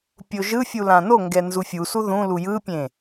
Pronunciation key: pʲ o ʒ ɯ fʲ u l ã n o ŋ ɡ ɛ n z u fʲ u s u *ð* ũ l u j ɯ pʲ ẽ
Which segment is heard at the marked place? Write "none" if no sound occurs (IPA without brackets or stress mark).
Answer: ð